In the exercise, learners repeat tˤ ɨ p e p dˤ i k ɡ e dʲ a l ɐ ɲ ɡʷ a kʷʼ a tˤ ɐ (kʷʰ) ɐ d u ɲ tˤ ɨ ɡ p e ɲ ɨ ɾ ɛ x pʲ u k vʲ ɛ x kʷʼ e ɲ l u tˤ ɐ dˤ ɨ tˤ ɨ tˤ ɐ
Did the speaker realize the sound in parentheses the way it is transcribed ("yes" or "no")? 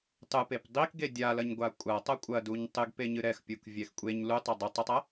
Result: no